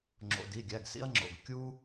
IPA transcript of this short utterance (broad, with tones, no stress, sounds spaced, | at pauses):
ŋ͡ǁ o̰˩˧˩ d i˩˧˩ ɡʲ æ˩˧˩ ɡ s ḭ˦ ɐ̯ ŋ͡ǁ o̰˩˧˩ ɡ kʲ u˦